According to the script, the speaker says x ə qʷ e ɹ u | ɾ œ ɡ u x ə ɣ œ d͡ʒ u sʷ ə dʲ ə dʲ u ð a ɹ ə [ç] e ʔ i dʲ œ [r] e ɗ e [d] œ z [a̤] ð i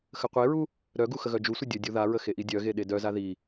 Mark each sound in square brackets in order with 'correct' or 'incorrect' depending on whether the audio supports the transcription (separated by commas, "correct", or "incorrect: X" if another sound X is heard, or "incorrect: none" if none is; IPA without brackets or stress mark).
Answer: incorrect: x, incorrect: ɣ, correct, incorrect: a